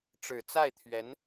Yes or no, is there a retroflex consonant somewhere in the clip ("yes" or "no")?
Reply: yes